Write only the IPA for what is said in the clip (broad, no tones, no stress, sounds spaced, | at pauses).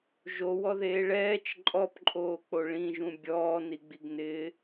ʒ o w ɔ ð eː ɭ ɛː t͡ʃ ǃʼ ɔ p ǃʼ oː k͡p o ɭ ĩ ʒ ũ bʲ ɔː n i ɡ͡b i ɡ n ɪː